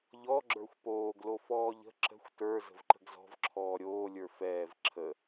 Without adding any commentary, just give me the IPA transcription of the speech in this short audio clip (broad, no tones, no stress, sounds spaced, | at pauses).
ʎ ɔ ɡ͡ǁ ə˞ xʷ p oː ɡ l o f ɔː ʎ ə̤ ǁ ə̤ xʷ t ə˞ z ə̤ v ǃ ə̤ ɡ z ɔ̤ v ǁʰ ɔː ɾʲ oː lʲ ə˞ f ɛː v ǁʰ ə